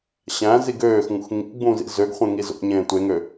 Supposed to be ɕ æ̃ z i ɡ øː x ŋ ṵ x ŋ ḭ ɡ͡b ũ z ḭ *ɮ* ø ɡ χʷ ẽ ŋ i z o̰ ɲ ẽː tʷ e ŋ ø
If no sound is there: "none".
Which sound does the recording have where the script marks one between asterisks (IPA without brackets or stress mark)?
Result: z